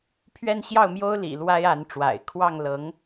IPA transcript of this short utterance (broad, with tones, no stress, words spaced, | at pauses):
pʰɥɛ˥˧nɕjɑ˥˩ʊ̯mjo˥ʊ̯ lḭ˨˩ lwa˥ɪ̯a˧˥nʈ͡ʂwa̰˨˩ɪ̯ kʰwɑ˥˩ŋ lɤ˧˥ŋ